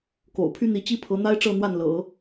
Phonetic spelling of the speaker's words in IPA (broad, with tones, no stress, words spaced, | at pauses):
ko̰˨˩ʊ̯pʰy˥ n̪i˧˥t͡ɕi˥pʰɤ˧˥ n̪a˥ɪ̯ʈ͡ʂɤ˥˧ n̪wa˥˩nlɤ̰˨˩˦